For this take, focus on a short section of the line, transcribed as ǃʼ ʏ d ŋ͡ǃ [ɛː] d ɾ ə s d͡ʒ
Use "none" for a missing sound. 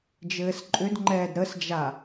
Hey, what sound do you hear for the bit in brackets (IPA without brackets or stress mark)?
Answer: ɛː